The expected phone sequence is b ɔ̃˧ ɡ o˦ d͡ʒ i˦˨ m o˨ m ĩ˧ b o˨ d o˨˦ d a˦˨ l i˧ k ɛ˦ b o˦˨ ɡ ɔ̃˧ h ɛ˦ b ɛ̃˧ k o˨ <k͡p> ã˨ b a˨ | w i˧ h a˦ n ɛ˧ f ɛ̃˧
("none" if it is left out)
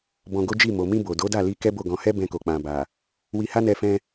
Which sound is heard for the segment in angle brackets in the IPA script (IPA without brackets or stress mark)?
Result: k͡p